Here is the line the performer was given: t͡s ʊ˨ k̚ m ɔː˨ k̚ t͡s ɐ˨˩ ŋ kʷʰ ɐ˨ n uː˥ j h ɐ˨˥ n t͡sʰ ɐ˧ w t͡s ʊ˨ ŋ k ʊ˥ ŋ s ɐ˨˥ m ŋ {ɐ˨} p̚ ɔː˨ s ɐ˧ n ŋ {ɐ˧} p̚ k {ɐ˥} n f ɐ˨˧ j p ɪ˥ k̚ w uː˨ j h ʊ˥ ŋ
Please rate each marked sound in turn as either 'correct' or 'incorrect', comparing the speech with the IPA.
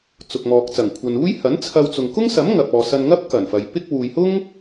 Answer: correct, incorrect: ɐ˥, incorrect: ɐ˨˩

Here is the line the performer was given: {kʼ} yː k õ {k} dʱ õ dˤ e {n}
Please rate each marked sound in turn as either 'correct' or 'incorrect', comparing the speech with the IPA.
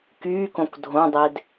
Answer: incorrect: k, correct, incorrect: d

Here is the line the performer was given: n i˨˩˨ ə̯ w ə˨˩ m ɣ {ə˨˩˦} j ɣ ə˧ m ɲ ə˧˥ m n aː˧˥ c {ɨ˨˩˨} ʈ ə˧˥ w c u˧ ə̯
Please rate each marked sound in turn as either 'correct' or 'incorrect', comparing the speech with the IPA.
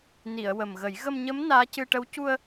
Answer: correct, incorrect: ɨ˧

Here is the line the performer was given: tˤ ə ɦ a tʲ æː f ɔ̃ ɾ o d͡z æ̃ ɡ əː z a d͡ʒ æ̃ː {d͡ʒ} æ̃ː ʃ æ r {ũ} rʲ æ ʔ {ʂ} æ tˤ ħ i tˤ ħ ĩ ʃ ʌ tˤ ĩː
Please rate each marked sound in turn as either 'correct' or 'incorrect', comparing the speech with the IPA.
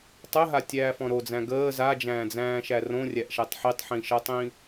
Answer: incorrect: d͡z, incorrect: õ, incorrect: ʃ

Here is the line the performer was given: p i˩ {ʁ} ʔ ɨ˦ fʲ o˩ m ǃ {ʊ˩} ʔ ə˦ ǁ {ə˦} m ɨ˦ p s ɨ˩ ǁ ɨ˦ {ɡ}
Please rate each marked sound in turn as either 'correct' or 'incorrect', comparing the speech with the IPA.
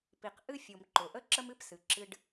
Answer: incorrect: q, correct, correct, incorrect: ɖ

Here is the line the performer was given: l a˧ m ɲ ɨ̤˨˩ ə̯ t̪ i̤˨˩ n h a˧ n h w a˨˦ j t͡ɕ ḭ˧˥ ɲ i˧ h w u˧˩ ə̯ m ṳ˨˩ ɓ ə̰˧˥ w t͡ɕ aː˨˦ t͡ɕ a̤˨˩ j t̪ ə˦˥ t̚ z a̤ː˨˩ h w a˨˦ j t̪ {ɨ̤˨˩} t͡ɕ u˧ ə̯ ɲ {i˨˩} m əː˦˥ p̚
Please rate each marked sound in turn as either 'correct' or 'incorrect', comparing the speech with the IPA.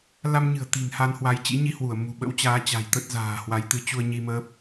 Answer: incorrect: ɨ˨˦, incorrect: i˧

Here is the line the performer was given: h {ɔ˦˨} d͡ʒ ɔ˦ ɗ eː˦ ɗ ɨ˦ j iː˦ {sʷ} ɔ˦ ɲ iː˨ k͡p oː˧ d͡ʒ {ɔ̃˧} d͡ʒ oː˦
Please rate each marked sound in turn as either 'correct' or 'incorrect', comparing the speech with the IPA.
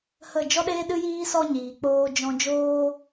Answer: incorrect: ə˦˨, incorrect: s, correct

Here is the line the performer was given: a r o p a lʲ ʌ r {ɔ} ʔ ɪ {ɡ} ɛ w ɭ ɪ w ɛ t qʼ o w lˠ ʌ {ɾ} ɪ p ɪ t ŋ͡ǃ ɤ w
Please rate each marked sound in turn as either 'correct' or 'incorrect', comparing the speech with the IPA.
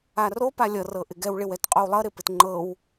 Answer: incorrect: ɤ, correct, correct

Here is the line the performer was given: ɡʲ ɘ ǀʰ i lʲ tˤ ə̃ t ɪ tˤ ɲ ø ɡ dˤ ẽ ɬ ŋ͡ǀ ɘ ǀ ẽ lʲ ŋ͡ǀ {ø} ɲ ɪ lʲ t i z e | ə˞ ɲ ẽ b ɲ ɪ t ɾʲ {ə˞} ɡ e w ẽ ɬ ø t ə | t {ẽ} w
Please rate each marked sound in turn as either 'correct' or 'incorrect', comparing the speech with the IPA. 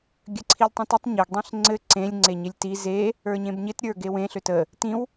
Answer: incorrect: e, correct, incorrect: ĩ

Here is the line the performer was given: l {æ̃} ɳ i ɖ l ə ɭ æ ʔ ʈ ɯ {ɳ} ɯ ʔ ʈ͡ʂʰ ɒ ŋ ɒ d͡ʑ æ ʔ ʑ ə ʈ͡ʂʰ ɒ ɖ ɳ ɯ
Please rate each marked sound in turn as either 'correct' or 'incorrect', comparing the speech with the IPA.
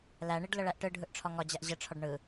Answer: incorrect: æ, incorrect: ɖʱ

